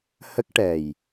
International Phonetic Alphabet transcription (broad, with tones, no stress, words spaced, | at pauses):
hə˦˥k̚ʈɛ˨˩j